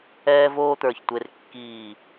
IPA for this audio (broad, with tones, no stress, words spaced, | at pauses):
ɛː˥voː˥t̪ə˞˧˩ç tʷe˧rkːiː˧˩